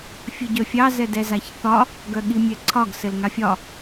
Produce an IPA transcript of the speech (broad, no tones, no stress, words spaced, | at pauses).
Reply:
fʲɘɟœfʲɑ zɛdɛzaçθɒ | ɡœɠimʲɛǀʰɒɡ sɘlŋafʲɒ